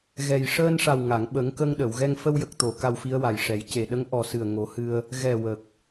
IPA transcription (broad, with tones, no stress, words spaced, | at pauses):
ɣɛ˨˩j ʂəː˧nʂa˨˩w ŋa˨˩˨ŋɓə˨˩˦ŋkə˧ŋ ɗə˨˩˨wɣɛ˧ŋ fə˧wjə˨˩k̚t̪o˨˩˨ ka˧wfi˧˥ə̯wa˨˩jʂɛ˨˩˦j ce˨˩ɗə˧˥ŋ ʔɔ˨˩sɨ˨˩ə̯ ŋo˨˩˦ hɨ˧ə̯ | ɣɛ˨˩ wə˨˩k̚